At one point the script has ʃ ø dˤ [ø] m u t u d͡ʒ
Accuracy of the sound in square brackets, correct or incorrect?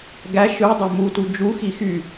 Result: correct